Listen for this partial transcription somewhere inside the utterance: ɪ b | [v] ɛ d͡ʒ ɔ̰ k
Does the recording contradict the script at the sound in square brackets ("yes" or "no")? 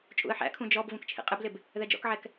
yes